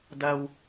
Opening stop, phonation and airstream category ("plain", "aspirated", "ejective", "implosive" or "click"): plain